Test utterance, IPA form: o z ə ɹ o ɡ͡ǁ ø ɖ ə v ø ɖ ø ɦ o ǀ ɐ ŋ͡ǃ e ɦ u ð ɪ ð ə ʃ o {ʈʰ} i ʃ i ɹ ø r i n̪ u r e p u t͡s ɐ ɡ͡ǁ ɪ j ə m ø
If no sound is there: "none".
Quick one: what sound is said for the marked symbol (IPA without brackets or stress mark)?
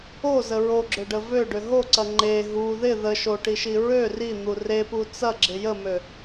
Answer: ʈ